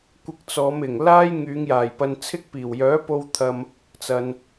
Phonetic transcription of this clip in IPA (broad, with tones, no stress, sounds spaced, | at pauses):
kʷ ɪ˧ k̚ t͡s ɔː˨˧ m ɪ˨˩ ŋ l aː˥ j ŋ yː˨˧ ŋ j aː˨˩ j p ɐ˧ n t͡sʰ ɪ˥ k̚ p iː˨˩ w j œː˨˥ p o˧ w t̪ʰ ɐ˨ m | t͡s ɐ˨ n